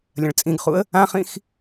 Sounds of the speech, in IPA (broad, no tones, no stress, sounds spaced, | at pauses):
lʲ ɐ̃ ɭ t͡sʼ ĩ ɡ χ u ə̯ | ã χ ĩ x